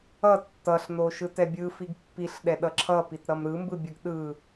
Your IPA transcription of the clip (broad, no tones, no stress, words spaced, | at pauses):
ʌ tːʌɬno ʃɯtɛbʲɯ fiɡpːiɬɗɛ ɗʌǁʰʌpit ɾʌmɾɯmbɯbʲɯɡ ɗɯ